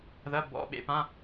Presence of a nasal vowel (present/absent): present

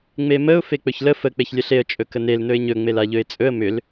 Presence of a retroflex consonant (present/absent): absent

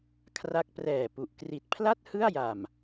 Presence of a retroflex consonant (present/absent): absent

